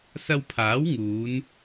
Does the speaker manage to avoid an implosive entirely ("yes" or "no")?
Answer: yes